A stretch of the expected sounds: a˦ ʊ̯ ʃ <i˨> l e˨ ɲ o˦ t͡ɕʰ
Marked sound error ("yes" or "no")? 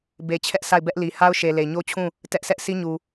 yes